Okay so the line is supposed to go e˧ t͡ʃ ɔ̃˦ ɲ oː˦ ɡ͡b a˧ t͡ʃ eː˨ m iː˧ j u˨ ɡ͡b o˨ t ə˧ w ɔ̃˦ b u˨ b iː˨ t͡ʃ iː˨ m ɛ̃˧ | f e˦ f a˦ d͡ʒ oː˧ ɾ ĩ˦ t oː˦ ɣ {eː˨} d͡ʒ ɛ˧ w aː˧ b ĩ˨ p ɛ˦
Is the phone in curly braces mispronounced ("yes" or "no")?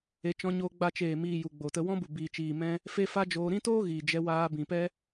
yes